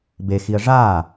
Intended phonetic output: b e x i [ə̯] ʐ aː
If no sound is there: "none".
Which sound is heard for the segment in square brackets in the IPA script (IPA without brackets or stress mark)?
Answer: ə̯